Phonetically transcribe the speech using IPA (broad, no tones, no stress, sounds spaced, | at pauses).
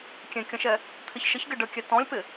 kʲ ẽ kʲ ə̃ ʃ ɛ | t̪ʰ ɪ ç ʃ ə ç ɡ ɪ ɖ ə kʲ ɛ t ɔ̃ lʲ p ɪ